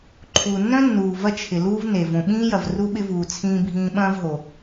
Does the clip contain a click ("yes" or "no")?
yes